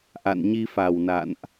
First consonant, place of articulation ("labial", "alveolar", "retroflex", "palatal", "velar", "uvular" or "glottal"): glottal